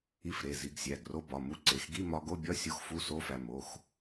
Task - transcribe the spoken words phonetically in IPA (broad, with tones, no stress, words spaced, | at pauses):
i˧fɾe˩˧˩ zi˧ɡ sʲæ˩˧˩ɡro˧bɒ˩˧˩ mu˧ǀe˩˧˩xɡi˧˥˧ mɒ˧ ɡo˧˥˧bʲɒ˧˥˧ sʲo˧˥˧xfu˧˥˧so˧˥˧fæ˧ mo˩˧˩x